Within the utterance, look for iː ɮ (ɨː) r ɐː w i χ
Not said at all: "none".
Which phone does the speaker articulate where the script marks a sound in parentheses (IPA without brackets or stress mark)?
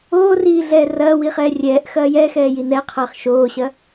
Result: ɛː